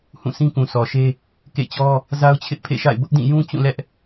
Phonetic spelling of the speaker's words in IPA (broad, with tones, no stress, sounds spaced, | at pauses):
h ũ˦˨ s ĩ˦ k ũ˨ s ɔ˨ ʃ e˦ | k ḛ˦˨ t͡ɕ ɔ˦ | z a˦ ʊ̯ t͡ɕʰ ɪ˦ ʔ pʰ ḛ˦˨ ʃ a̰˦˨ ɪ̯ b ʊ˦ ʔ d ĩ˦˨ j ũ˦ t͡ɕ ũ˦˨ l ɛ˦ ʔ